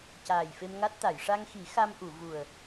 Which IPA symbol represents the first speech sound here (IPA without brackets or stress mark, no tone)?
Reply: c